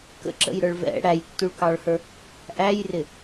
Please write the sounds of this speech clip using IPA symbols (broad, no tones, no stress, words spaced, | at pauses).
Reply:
kə̰ǁə̰jɾə˞ɭ vɛ̰ ɽæjtːuɭkɑɭhə˞ | ʔæjrɪ